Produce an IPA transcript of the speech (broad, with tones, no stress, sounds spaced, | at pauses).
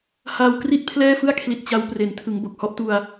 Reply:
h aː˧ w k r i˥˩ t̚ pʰ l ɛː˥˩ f ɯ˥˩ a̯ kʰ l i˨˩ t̚ t͡ɕ a˦˥ w p r e˩˦ n tʰ ɯ˩˦ ŋ b o˨˩ k̚ h ɔ˦˥ ʔ t u˧ a̯